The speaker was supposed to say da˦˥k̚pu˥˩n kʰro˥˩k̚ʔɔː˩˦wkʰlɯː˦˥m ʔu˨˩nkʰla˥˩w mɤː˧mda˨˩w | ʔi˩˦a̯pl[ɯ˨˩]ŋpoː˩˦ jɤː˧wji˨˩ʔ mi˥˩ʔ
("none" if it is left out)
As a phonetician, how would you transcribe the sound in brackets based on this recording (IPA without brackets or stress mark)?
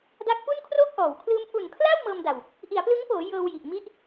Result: ɯ˦˥